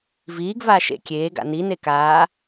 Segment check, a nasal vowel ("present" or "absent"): absent